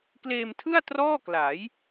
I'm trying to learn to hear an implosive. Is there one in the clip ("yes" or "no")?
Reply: no